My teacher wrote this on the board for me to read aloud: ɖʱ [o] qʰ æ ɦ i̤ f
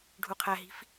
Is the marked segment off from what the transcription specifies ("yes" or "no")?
yes